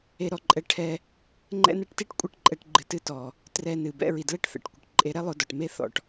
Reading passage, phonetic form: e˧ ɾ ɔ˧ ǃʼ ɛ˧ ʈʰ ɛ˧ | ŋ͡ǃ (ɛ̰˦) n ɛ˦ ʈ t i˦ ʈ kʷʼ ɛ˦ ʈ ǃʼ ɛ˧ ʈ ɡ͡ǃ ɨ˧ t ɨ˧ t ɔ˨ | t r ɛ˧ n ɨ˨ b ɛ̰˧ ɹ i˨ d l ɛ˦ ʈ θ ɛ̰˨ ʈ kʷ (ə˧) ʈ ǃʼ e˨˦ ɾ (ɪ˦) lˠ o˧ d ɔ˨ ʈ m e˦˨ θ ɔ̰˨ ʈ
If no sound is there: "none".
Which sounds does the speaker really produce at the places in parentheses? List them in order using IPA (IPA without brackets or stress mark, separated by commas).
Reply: ɛ̰˦, ə˨, ɛ˦